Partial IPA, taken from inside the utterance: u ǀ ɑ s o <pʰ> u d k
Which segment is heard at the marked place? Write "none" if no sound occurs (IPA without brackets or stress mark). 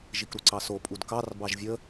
pʼ